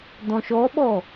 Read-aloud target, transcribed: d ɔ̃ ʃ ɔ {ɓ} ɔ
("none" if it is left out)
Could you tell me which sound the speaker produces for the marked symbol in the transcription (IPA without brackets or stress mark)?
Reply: ɓ